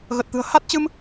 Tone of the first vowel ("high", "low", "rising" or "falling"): low